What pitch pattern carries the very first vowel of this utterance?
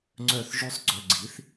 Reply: falling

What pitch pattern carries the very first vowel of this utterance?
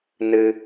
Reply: high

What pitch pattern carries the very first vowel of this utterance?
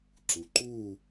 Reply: low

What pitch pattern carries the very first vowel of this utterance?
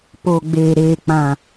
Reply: low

